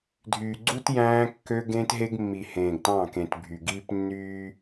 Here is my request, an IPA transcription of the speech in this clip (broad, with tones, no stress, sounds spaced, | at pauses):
dʱ yː˨ ɡ͡ǀ u˦ t j æ̃ː˦ kː ø˦ ɡ ẽː˦ t ɦ e˦ ɡ mː i˨ h ẽː˨ ɡ t ɑ̃˦˨ k ẽ˨ t bʱ y˨ ɡ iː˦ p nː yː˦